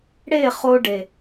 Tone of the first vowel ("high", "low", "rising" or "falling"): falling